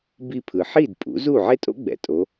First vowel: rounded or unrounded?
unrounded